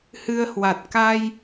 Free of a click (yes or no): yes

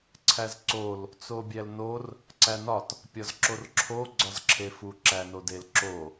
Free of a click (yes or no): no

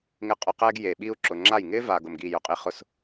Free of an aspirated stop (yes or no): yes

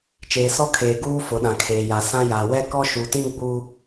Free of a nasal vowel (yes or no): no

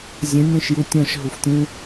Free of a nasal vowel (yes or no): no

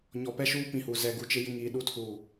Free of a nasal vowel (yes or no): no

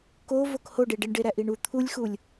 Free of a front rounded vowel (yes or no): yes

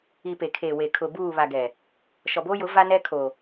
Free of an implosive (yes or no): yes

